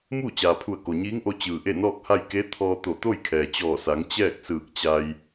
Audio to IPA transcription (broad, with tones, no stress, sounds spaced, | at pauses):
m uː˥˨ t͡ɕ aː˩ pʰ u˧˩ ə̯ k o˩ ɲ iː˧˥ ŋ ʔ o˧ t͡ɕ ɯː˩ ʔ e˥˨ n ɔː˥˨ k̚ h a˥˨ j k e˧˥ t̪ʰ ɔː˧ t̪ o˧˩ t̪ o˥˨ j kʰ ɛː˩ t͡ɕ ɔː˧˩ s a˩˧ ŋ t͡ɕ ɛː˥˨ k̚ s ɯː˧˩ k̚ t͡ɕ a˧ j